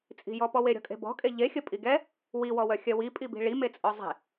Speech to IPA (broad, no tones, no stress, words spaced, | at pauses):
t͡sʼi̤jɔpɔwe ɾʲɔ̤kʼe̤bɔ̤kʼe ʎexʲə pʼiɡɛ | wiwɔwœxʲœ wipʼibi̤ ɭimet͡sʼɔ zˤe̤